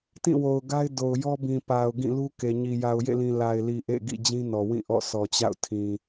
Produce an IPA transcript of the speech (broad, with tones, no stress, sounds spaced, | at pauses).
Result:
t ĩ˦˨ w o˨ ʊ̯ ɡ a˦ ɪ̯ d o˨ ʊ̯ j ɔ˦ b ĩ˨ p a˨ ʊ̯ ɡ ĩ˦˨ l u˦ k e˨ ɲ i˨ j a˨ ʊ̯ j ḛ˦˨ l ĩ˨ l a˨ ɪ̯ l i˨ ʔ ḛ˦˨ ɡ ḭ˦˨ d͡ʑ ĩ˦ n ɔ˨ w ĩ˦˨ ʔ ɔ̰˦˨ sʰ ɔ˨ t͡ɕ a̰˦˨ ʊ̯ tʰ ĩ˨